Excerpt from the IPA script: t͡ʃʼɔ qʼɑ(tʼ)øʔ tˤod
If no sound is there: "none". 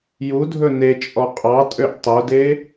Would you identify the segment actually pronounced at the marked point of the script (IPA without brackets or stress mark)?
tʼ